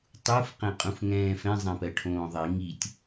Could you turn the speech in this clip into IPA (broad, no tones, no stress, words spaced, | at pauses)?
tˤuf qɛ̃qʼũfŋɛ̃ːfɛ̃ zˤɛ̃pɜʈʰõːðˤi ŋitʲ